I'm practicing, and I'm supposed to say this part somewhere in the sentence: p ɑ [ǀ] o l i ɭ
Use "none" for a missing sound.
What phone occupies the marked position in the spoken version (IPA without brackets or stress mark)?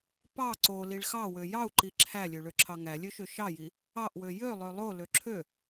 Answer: ǀ